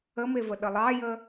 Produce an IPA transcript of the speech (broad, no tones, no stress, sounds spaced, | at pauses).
ə m e v ə ɗ ə lˠ ɑ j ə